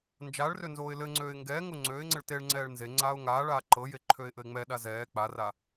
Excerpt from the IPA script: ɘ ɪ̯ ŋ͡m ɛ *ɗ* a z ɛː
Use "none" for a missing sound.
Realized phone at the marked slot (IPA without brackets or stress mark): ɗ